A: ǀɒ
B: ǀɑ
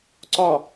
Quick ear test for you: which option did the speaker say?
A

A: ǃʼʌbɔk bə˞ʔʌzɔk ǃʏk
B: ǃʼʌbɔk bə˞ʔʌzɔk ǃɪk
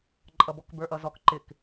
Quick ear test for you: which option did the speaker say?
B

